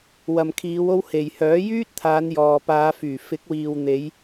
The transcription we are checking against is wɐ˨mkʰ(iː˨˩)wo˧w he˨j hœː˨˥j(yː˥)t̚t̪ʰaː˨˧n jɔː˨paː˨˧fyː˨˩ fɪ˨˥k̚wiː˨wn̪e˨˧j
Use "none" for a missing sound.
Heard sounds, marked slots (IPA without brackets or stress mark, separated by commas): iː˨˧, yː˥